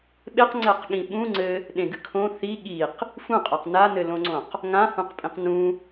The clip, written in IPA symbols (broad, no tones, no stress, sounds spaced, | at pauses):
ɓ e q ŋ͡ǀ ɛ q ɠ ĩ ɓ ũ ŋ͡ǀ ɘ | ɗ ẽ ɡ ɨ kʰ õ θ i ɠ i q | f ũ qʼ a q n a n ɘ l õ ŋ͡ǀ õ q | ŋ ã h ũ q pʼ ĩ q n ũ